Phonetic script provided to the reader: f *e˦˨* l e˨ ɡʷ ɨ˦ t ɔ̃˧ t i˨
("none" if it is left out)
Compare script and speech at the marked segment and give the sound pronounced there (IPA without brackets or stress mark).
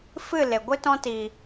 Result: ɨ˦˨